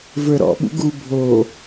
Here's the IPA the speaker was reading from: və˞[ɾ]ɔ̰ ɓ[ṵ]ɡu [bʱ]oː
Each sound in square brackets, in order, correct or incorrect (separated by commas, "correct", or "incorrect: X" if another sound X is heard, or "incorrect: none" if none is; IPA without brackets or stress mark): correct, correct, correct